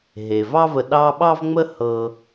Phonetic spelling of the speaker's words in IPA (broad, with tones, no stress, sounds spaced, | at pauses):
ɦ e˩ v ɑ˦ v ə˨ ɗ ɑ˦ ɓ ɑ˥ v ŋ͡m ə˥ h ɤ˦